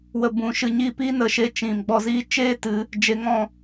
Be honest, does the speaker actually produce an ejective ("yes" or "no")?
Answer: no